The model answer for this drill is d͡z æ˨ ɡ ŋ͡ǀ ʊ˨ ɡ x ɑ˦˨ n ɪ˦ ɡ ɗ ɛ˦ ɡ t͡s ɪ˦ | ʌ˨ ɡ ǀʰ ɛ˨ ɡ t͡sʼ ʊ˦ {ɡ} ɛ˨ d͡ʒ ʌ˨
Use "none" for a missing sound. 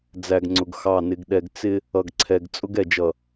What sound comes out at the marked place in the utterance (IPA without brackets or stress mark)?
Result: ɡ